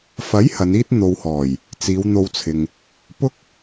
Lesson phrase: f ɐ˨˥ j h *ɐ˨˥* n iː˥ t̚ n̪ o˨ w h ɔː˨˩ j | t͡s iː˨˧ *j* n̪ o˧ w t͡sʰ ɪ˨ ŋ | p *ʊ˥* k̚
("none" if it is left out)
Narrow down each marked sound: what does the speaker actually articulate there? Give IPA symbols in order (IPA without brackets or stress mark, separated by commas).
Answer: ɐ˨˧, w, ʊ˥